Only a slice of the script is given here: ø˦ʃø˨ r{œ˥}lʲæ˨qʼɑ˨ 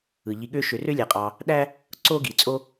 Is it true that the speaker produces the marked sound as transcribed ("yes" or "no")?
no